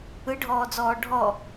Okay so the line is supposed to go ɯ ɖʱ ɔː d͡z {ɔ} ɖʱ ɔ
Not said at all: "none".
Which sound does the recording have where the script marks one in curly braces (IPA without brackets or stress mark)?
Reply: ɔː